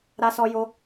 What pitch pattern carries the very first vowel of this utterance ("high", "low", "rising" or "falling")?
high